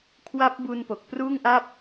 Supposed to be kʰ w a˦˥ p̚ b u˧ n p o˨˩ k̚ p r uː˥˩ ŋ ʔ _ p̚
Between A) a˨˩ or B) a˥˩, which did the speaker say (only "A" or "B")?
B